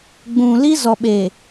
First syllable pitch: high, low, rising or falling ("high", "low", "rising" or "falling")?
low